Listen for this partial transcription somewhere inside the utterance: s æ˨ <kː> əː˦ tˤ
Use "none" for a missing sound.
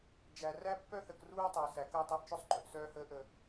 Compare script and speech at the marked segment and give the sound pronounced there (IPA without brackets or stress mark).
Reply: k